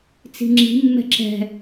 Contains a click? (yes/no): yes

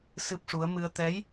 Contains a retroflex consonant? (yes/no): yes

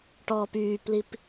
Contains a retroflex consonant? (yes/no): yes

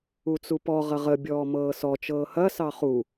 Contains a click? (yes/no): no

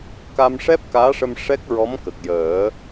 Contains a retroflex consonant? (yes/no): yes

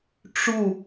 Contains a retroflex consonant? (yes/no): yes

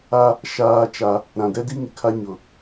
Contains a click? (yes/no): no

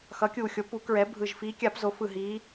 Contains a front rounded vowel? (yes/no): no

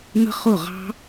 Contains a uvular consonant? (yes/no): yes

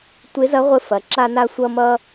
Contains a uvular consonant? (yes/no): yes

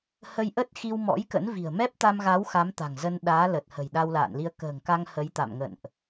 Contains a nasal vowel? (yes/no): no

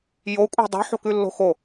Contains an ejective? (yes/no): yes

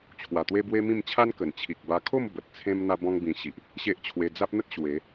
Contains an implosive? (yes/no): no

